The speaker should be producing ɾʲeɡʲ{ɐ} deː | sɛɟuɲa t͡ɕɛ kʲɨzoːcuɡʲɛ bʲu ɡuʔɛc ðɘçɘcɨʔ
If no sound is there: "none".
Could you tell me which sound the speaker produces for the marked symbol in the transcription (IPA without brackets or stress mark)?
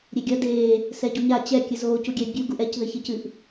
ɐ